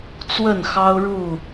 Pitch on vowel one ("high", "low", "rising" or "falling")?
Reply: falling